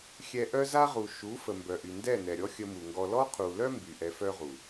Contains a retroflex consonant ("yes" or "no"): no